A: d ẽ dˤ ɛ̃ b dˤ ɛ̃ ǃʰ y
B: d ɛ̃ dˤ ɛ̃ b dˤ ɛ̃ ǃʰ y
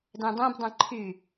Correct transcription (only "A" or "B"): B